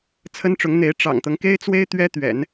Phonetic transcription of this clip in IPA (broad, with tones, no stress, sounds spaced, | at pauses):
t͡sʰ ə˥ n ʈ͡ʂ ʊ˧˥ ŋ n̪ e˧˥ ɪ̯ ʈ͡ʂ ɑ̰˨˩ ŋ t̪ ɤ˦ ŋ k e˥ ɪ̯ t͡s w e˥ ɪ̯ t̪ ɥ ɛ˥ t̪ ɥ ɛ̰˨˩˦ n